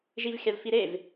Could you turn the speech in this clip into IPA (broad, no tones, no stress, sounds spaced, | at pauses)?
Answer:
ʒ i v xʲ a v f i ɾ e v